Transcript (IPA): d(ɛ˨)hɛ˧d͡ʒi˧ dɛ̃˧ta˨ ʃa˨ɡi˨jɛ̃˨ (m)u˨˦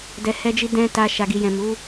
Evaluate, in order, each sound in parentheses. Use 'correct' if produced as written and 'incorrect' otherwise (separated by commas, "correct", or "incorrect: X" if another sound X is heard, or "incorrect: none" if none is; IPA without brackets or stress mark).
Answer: correct, correct